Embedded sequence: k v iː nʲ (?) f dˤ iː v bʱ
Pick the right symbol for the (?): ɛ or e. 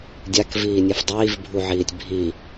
e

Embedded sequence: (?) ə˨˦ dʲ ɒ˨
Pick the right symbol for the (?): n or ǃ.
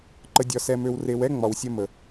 ǃ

